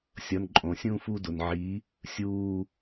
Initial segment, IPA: sʲ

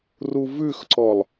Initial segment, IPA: r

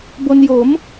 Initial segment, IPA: b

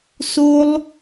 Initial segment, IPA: s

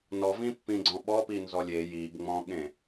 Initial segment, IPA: n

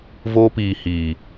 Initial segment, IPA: v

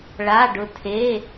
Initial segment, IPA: ɭ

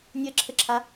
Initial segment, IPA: nʲ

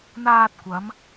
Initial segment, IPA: n̪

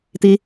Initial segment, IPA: t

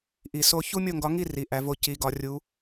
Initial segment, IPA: ʔ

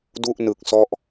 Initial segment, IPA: d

